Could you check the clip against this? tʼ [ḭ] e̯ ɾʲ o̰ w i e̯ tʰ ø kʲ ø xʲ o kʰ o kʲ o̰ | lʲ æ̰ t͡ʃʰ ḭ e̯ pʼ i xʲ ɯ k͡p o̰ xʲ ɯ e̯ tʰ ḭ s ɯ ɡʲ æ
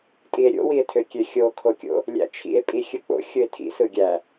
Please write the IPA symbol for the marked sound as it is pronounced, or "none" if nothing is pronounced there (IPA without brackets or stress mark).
i